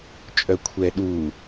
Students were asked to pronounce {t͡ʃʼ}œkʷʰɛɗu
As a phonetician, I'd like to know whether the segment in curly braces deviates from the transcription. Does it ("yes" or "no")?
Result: no